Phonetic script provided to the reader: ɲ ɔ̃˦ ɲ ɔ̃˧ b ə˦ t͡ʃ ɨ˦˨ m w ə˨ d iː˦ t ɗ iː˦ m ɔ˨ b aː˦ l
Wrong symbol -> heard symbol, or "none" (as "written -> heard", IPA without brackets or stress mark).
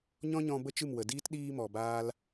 none